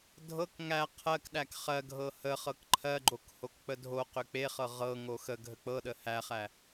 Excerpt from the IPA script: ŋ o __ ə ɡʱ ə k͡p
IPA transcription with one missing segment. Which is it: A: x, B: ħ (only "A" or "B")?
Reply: A